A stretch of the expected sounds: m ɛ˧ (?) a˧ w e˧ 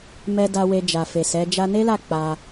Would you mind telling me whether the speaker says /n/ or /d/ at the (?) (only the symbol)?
d